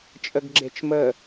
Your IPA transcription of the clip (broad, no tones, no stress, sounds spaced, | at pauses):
t͡ʃʼ ə ɡ ɡ͡ǁ e t͡ʃ m ə